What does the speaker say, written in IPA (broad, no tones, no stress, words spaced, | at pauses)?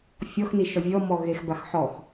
fʲɔxniʃɔ vʲɔmɔ ɣexbax ħɔx